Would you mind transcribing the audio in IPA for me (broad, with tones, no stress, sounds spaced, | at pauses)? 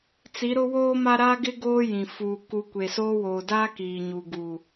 t͡s i˨˦ ɾ ʊ˦ w oː˦ m a˦ ɾ a˦ ɡ ɪ˦ ɡ oː˦ j ĩ˨ f uː˨ k u˨ kʷ e˨ s oː˦ w oː˨ d aː˦ k iː˨ ɲ u˨ ɡ u˨